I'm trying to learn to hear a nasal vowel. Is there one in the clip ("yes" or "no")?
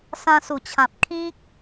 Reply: yes